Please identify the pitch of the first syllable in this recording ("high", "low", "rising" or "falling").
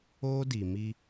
high